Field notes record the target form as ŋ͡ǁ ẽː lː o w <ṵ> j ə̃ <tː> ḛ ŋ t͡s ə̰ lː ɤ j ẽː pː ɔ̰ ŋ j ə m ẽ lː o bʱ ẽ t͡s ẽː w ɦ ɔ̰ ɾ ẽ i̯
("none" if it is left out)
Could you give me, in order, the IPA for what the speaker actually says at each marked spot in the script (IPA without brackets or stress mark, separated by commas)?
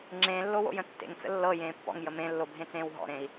o̰, tː